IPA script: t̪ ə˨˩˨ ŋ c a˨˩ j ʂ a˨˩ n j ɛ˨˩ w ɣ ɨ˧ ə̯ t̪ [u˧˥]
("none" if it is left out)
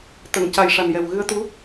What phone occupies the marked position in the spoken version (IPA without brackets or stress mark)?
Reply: u˧˥